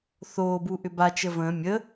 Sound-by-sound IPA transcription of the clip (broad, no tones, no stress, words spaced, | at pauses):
θoːbuʔʏ ba t͡ʃəvə̃ː mʲə